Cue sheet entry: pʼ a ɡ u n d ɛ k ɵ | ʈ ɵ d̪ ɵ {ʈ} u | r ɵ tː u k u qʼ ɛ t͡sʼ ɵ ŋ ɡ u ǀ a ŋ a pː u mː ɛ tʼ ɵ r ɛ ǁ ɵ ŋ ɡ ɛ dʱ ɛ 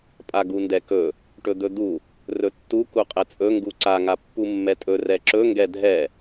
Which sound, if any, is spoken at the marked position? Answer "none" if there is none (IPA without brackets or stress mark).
d̪